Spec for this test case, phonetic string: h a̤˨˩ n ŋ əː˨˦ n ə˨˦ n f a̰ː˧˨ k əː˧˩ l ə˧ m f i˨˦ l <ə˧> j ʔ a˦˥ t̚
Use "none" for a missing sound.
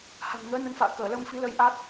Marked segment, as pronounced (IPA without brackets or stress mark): ə˧